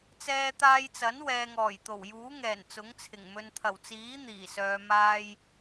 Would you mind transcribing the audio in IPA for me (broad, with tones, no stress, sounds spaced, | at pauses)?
t͡s ɛː˧ t̪ aː˧ j t͡s ɐ˨˥ n w ɛː˨ ŋ ɔː˨˩ j t̪ o˨˩ w j uː˨˥ ŋ ɛː˨˩ n t͡s ʊ˨˥ ŋ t͡sʰ ɪ˨˩ ŋ m ɵ˨ n t̪ʰ ɐ˨˩ w t͡s iː˨˥ n̪ iː˨˩ s œː˨ m aː˧ j